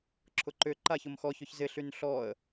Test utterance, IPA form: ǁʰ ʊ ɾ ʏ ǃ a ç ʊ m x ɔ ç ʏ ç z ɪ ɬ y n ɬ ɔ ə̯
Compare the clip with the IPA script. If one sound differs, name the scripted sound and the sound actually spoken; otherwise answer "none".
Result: ɾ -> ǃ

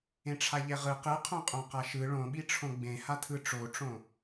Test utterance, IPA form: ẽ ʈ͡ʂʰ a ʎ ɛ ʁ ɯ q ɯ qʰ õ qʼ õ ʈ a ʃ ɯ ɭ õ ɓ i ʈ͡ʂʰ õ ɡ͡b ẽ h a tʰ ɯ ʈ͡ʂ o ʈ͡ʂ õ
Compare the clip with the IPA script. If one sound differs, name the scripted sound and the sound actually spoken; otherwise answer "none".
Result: ʈ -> q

